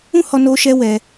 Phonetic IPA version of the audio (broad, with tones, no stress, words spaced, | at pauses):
ũ˦hɔ˧no˧ʃɛ˧ wɛ˧